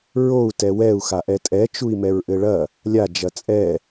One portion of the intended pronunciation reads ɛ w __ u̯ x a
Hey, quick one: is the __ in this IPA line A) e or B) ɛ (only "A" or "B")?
B